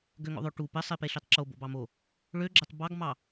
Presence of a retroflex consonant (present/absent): present